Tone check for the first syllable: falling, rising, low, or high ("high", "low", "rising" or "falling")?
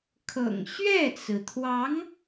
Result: low